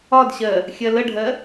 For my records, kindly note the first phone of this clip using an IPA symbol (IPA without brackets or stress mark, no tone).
ɒ